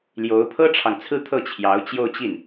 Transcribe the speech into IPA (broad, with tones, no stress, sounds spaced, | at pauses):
l j o˧˥ ʊ̯ pʰ ɤ˥ ʈ͡ʂʰ ɑ˨ ŋ t͡sʰ ɹ̩˥˧ t̪ʰ ɤ˥˩ t͡ɕʰ j ɑ˧˥ ʊ̯ t͡ɕ j o˥˧ ʊ̯ t͡ɕ i˥˩ n